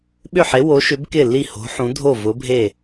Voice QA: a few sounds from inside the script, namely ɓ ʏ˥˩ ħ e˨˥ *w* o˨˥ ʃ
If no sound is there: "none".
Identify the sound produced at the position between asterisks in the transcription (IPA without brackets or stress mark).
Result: w